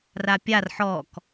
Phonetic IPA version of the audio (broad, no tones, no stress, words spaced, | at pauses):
rapʲar ħɔk